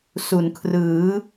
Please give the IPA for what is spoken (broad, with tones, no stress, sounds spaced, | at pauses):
s u˩˦ n kʰ r ɯː˩˦